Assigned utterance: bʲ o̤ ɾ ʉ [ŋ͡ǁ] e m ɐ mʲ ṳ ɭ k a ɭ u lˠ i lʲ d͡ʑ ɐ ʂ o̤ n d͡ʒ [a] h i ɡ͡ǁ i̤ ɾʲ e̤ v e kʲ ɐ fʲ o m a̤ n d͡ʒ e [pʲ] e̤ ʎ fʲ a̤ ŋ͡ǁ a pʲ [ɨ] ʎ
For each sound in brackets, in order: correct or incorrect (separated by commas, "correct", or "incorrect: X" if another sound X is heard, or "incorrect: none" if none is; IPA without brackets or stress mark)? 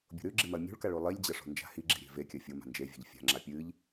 incorrect: ɡ͡ǁ, incorrect: a̤, incorrect: vʲ, correct